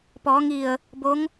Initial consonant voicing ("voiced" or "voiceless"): voiceless